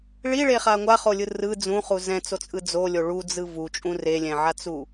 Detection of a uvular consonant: present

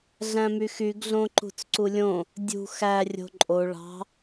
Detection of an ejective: present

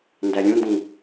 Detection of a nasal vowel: present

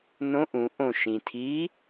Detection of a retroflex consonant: absent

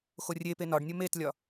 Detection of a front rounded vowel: absent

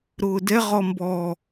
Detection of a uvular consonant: present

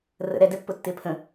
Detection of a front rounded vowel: absent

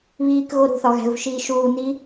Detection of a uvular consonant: absent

